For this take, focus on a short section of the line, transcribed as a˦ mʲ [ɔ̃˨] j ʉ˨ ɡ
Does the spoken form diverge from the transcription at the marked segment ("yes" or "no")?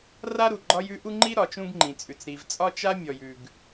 yes